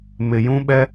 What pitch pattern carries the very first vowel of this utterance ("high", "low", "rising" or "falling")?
low